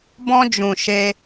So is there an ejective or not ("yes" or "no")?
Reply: no